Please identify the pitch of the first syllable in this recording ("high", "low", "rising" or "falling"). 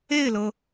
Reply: falling